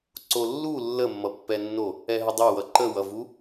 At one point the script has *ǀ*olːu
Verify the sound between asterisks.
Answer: correct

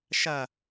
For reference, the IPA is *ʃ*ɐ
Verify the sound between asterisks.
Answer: correct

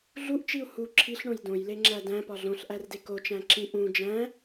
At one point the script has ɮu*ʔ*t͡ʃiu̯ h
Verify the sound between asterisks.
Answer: correct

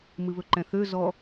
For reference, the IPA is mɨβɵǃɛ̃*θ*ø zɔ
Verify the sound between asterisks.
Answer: correct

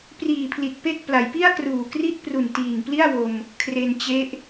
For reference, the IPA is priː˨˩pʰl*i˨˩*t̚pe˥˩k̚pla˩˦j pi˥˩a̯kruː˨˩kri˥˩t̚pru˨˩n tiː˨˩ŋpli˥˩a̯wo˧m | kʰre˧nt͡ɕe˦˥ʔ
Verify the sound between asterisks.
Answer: correct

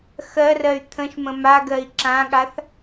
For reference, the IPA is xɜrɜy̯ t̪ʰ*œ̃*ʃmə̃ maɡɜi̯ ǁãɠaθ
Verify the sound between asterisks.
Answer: incorrect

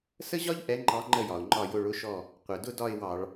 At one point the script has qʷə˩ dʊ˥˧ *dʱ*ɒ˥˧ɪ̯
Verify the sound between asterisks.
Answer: incorrect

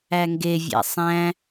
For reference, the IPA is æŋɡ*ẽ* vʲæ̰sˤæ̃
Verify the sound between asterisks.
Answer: incorrect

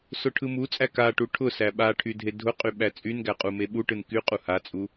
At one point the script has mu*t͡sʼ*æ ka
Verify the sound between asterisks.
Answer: correct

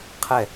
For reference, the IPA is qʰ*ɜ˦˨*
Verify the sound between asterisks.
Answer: incorrect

